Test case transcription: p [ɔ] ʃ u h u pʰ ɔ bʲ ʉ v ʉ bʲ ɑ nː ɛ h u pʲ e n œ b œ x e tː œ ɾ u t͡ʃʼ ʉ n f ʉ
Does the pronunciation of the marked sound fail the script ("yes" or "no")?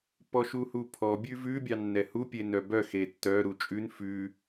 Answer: no